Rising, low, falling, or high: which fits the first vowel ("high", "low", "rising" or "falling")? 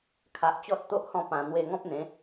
low